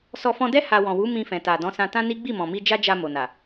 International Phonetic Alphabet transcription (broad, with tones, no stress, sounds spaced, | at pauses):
s ɔ˧ f ɔ̃˧ d ɛ˦ h a˧ w ɔ̃˨ w u˨˦ m ĩ˧ f ɛ̃˨ t a˨ d ɔ̃˨˦ s ã˧ t ã˦ n i˦ ɡ͡b i˦˨ m ɔ̃˨ m i˧ d͡ʒ a˦ d͡ʒ a˧ m o˨ n a˨